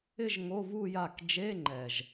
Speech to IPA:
ɪ˥˧ʒ ŋo˧˥˧vu˥˧ja˥˩k d͡ʒe˧˥˧ŋ͡ǃɛ˨˩ʒ

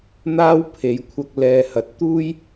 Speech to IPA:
n̪aː˧w pʰe˨˧jkʷʰɐ˧k̚ lɛː˧hɐ˨˥t̚ t̪uː˥j

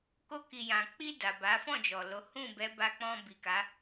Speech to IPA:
ko˧ ki˨jã˨ k͡pi˧ da˨ ba˨˦fɔ̃˦˨d͡ʒɔ˨lo˨˦ hũ˦˨bɛ˨˦ba˧k͡pɔ̃˧ bi˨ka˨˦

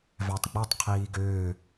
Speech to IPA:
vætˤɡ͡betˤ qʰiːɡøː

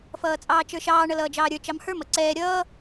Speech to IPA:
fʌːt͡sʼɑːt͡ʃə˞ʃɑː ɳʌlʌːd͡ʒɑːɾʲə˞ t͡ʃɑmhə˞m ʌǀɛː ɾʲʌː

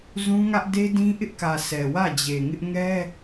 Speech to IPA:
zũ˦ŋä˦ʔ de˦dĩ˦ʔɪ˦ʔkä˨ sʰɛ˨wä˦˨d͡ʑe˨ŋɪ˦ʔ ŋɛ˦

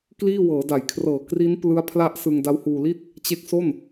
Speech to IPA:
kliː˥˩ wɤː˩˦da˩˦jkʰrɤː˨˩ kri˦˥n plɯ˦˥a̯pʰla˦˥ʔ sɯ˧ŋda˦˥whuː˧li˥˩t̚ | t͡ɕe˦˥k̚so˥˩n

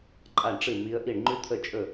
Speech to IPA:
ǃʼa˥˩ɳʈ͡ʂɨ˥˩mi˧˥ə̯ʔi˥˩ɳ ŋ͡ǃʉ˥t̪ʰə˥˩t͡ʃʼɵ˥˩

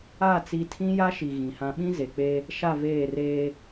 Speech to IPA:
a˦˨ t͡si˦ tʰĩ˦ja˦ʃi˨ ɣĩ˨hã˦ ɓĩ˦ze˨k͡pe˦ | ʃa˦˨veː˦˨reː˦

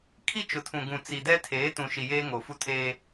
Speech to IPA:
kʰi˦t͡ʃʊ˨tʰũ˨ɡũ˨ t͡si˨dɛ˦tʰeː˨˦ tũ˨ʃi˨jeː˦ ŋo˨fu˦tʰeː˦

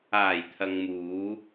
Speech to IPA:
aː˨˩jt̪ʰɐ˨ŋmuː˨˧

